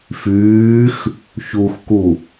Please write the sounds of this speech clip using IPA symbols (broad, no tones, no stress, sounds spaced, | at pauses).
f yː x | ç u x k u